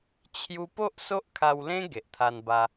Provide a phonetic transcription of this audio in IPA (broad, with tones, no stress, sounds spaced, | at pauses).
t͡ɕʰ j u˧ p o˦ ʔ s o˦ ʔ kʰ a˧ w l ẽ˦ ɡ e˨ ʔ t̪ʰ a˧ n b a˧